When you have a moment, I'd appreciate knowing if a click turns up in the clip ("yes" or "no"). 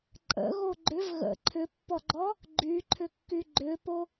yes